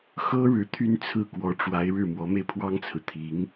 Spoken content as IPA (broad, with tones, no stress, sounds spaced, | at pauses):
x ɤ˥ ɻ ɻ̩˧˥ t̪ʰ y˥ n t͡sʰ ɹ̩˥˩ k w ɔ˧˥ ʈ͡ʂ w a˧˥ ɪ̯ ɻ ɻ̩˥˩ m w ɔ˧˥ m e˧ ɪ̯ pʰ w ɑ˥ ŋ t͡sʰ ɹ̩˨ t̪ʰ i˧˥ ŋ